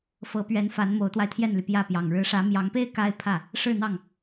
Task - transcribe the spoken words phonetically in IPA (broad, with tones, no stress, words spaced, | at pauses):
fɤ˧˥pɥɛ˧˥n fa˧˥nmo˧˥ʊ̯t̪wa˧ɪ̯ t̪ʰjɛ˥˩nly˩pjä˥˩pjɑ˨˩ŋ ɻɻ̩˧˥ʂä˧˥mjɑ˧˥ŋpe˥ɪ̯ ka˥ɪ̯pʰä˥˩ | ʂɻ̩˥˧n̪ɑ˥˩ŋ